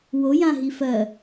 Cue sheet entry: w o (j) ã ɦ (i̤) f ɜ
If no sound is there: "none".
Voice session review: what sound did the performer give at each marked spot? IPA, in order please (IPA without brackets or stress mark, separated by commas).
j, i